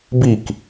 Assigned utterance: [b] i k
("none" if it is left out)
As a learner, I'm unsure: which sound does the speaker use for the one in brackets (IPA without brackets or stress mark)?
b